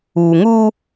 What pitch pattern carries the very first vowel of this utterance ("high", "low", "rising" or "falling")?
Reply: low